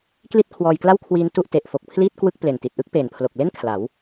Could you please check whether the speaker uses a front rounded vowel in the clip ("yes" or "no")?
no